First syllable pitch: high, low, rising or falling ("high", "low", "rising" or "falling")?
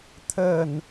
falling